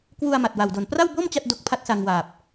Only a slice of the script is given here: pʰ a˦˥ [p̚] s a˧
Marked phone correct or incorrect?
incorrect